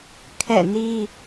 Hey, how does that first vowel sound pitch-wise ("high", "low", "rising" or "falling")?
falling